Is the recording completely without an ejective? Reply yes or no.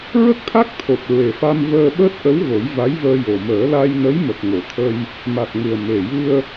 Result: yes